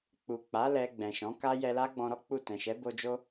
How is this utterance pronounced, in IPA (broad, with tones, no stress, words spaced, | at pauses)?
k͡pu˨ k͡pa˨˦ lɛ˧ɡ͡bɛ̃˨ʃɔ̃˨˦ka˦ jɛ˧la˦ɡ͡bɔ̃˧ ɾɔ˦k͡pu˦˨ tɛ̃˨ʃɛ˨˦bo˧d͡ʒo˦